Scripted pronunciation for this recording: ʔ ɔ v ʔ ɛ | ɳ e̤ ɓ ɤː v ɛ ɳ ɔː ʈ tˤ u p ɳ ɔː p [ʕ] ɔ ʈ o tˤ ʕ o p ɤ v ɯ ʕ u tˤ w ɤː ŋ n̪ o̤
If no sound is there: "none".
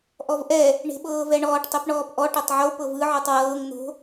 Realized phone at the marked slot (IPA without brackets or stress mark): ʔ